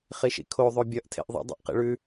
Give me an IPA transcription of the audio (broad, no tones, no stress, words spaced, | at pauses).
χiʃḭkʰo ðˤobʲʌʔ tʰḛʔðˤḭ dˤḛʔqḭɭʉ